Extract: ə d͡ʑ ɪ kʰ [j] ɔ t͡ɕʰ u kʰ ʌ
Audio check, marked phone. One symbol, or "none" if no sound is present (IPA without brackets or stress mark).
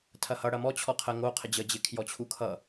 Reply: j